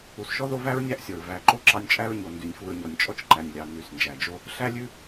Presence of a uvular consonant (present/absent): absent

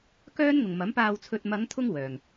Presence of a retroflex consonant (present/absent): absent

